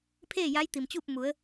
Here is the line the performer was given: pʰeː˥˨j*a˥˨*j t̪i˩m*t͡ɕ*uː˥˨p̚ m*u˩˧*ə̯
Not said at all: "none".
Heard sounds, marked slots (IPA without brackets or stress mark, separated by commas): a˧˥, t͡ɕ, u˩˧